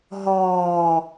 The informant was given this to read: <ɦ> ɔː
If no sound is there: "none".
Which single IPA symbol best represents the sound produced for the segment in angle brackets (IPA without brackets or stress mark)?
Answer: ɦ